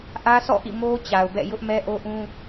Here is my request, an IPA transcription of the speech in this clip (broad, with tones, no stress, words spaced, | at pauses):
ʔä˦sʰɔ̰˦˨ʔḭ˦˨ mo˦ t͡ɕa˨ʊ̯bɛ̰˦˨ jʊ˦ʔmɛ˦ ʔo˦ʔũ˦